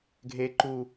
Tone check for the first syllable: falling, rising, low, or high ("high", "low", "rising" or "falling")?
high